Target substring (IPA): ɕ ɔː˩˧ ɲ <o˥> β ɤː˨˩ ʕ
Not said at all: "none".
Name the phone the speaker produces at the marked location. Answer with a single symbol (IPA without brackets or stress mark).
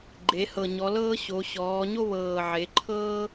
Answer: o˥